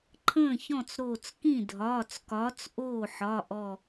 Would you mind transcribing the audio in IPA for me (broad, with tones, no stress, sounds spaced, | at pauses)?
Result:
ǃʰ ə̃ː˥˩ ç ɔ̃˥˩ t͡s ɾ oː˧˩ t͡s k ĩ˥˩ dʱ ɒː˩˧˩ t͡s k ɒː˨˥ t͡s ʔ oː˥˩ ħ ɒ˩˧˩ ʔ ɔ˧˩